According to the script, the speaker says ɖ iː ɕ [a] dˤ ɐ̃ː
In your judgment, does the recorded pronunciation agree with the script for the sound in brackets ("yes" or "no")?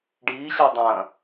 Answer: yes